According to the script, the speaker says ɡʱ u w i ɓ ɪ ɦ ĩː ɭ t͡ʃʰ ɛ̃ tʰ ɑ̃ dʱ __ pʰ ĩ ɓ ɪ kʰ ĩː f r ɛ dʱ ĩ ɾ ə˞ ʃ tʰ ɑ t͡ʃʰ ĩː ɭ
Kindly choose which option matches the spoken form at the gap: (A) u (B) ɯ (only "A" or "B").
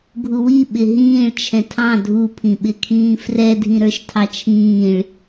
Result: A